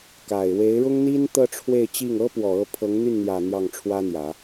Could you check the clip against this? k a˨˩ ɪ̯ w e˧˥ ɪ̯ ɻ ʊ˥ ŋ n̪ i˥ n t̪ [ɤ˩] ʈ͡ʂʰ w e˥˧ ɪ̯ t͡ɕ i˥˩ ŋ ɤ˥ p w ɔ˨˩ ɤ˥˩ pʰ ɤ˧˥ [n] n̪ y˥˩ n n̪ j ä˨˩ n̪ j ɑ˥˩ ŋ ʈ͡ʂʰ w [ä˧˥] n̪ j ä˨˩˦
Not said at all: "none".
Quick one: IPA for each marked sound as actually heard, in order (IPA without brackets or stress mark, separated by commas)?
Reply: ɤ˥, ŋ, ä˥